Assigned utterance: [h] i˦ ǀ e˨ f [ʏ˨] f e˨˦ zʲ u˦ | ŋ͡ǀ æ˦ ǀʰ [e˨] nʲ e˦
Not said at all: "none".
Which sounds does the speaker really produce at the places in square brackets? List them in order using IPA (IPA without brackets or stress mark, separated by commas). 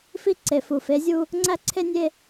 f, u˨, e˦